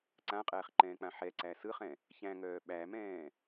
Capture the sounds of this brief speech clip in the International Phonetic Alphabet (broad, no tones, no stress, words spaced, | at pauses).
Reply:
ǀãqʼɛːχǃɛ̃ːk͡pã ħɛǀæ sɯχɛ̃ | çæ̃ŋœː ɓæmɛ̃ː